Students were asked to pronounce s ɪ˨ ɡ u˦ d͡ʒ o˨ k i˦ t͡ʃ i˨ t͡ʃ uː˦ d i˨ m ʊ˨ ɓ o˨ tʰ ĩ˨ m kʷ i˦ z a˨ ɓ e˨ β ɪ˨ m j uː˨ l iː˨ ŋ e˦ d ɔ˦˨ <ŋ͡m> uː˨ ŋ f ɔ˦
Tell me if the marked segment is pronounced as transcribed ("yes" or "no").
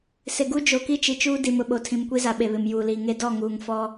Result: no